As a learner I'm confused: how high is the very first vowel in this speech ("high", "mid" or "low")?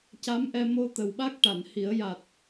low